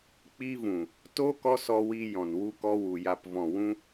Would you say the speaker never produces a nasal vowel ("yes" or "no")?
no